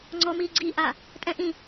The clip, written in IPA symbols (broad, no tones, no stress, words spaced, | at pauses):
ŋ͡ǀɔmiː ɡ͡ǀiʔa | tʼɛ̃ʔĩ